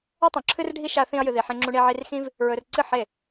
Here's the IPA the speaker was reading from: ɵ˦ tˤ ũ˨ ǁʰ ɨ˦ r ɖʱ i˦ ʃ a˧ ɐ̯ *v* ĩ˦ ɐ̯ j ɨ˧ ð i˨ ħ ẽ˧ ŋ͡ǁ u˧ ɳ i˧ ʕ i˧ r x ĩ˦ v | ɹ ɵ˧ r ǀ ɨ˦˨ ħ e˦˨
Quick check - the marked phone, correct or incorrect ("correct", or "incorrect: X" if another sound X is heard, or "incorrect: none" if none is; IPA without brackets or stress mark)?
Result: incorrect: θ